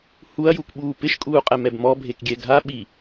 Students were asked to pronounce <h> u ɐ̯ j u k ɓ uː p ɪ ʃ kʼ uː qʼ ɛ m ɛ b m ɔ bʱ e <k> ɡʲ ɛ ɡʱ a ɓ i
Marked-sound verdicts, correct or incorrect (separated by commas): correct, correct